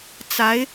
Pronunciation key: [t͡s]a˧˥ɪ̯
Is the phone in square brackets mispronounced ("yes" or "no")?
no